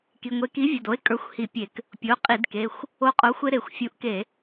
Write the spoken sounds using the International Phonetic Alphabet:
k i˩˧˩ ŋʷ e˨˥ k i˨˥ vʲ ə˩˧˩ d o˨˥ e̯ kʼ ə˞˨˥ xʷ h i˧˩˧ pʲ e˧˩˧ k | pʲ o˩˧˩ qʼ i˧˩˧ d k e˩˧˩ xʷ | o˧ qʼ o˨˥ xʷ e˧ ɾ e˧˩˧ xʷ fʲ u˨˥ ʔ k e˧˩˧

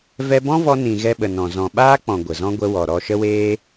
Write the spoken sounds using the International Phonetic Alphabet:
v ɛ˧ b ɔ̃˦ v ɔ˧ n ĩ˨ ɣ ɛ˧ ɓ ə˨ n ɔ̃˨ z ɔ̃˨ ɓ aː˦ k͡p ɔ̃˨ ɡʷ ə˨ z ɔ̃˦ ɡʷ ə˧ w ɔ˨ ɾ ɔ˧ ʃ ə˦ w eː˦

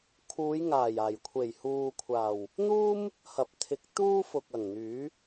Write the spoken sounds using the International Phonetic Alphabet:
kʰ uː˨˧ j ŋ aː˨˩ j aː˨˩ j kʷʰ e˨˩ j h uː˨ kʷʰ aː˨˩ w | n̪ uː˥ m | h ɐ˨ p̚ t̪ʰ ɪ˨˥ k̚ t̪ uː˥ f ʊ˨ k̚ ɐ˨˩ ŋ n̪ yː˨˥

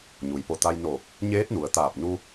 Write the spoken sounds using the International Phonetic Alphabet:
ɲ u˩ j p o˧˩ t̪ a˧ j n oː˧˩ p̚ | ɲ eː˧˥ t̚ n u˩ ə̯ t̪ aː˧˩ p̚ n u˧

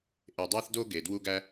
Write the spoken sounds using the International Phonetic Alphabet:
ʔ e˨ dˤ æ˦ θ d o˦ ɡ e˨ d w u˦ ɡ æ˦

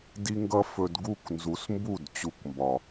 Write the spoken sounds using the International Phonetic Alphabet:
d i˦ ŋ ɡ ʌ˦ f ɵ˧ d ɡ u˦˨ k n z u˨˦ s m b u˦˨ d t͡ɕ u˧ k m b ɒ˨

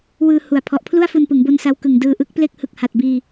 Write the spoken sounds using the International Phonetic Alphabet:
w ɯː˧ h u˨˩ a̯ pʰ ɔ˨˩ ʔ pʰ l u˥˩ a̯ f u˧ n p ɯ˩˦ ŋ b o˧ n s a˧ w k ɯ˨˩ ŋ d ɯː˧ ʔ ɯ˦˥ k̚ p l e˥˩ k̚ h ɯ˨˩ k̚ h a˨˩ t̚ b iː˧

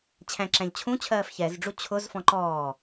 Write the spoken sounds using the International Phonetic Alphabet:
t͡ɕʰ æ̃ ǁ æ̃ ʎ t͡ɕʰ ũ t͡ɕʰ ɜː f ç ɛ z ɖ͡ʐ u t͡ɕʰ ʊ z f ɔ̃ ǃ ɔː

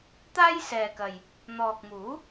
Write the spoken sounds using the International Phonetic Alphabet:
t̪ aː˥ j s ɛː˨ k ɐ˨ j | n̪ ɔː˨ k̚ m uː˨˥

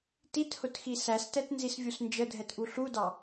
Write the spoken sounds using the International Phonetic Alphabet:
t i t h ʊ t x i s æ s t ɛ t n z i s vʲ u s n d͡ʒ ə dʱ ɛ t ʔ u ɬ u d ɑ

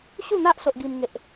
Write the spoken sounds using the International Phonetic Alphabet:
ɕ u˥˧ n̪ a˦ ʔ s o˦ ʔ ɡ i˦ m ŋ e˦ ʔ

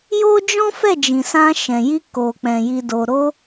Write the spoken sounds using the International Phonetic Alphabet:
j o˦ d͡ʒ ɔ̃˦ f ɛ˦˨ d͡ʒ ĩ˨ s ã˧ ʃ ɛ̃˨ j i˧ k o˨ k͡p ɛ̃˨ j i˨ d o˨ ɾ o˧

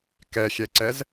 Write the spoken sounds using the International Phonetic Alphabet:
k ɛ xʲ ɛ ǀ ɛ z

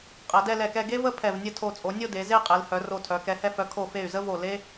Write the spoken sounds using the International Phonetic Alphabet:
qʼ ɛ˩˧ d ɛ˥˧ l ɛ˧˩ k ɛ˥˧ ɡ e˥ v ə˥˧ pʰ ɛ˧˩ v nʲ ə˥˧ tʰ o˧˩ t͡sʼ o˩˧ nʲ o˥˧ d e˩˧ z e˥˧ qʼ e˩˧ l h œ˩˧ r o˧˩ tʰ œ˩˧ k ɛ˩˧ h ɛ˧ f œ˩˧ kʰ o˧˩ f e˧˩ y̯ z ə˥ v o˧˩ l e˥

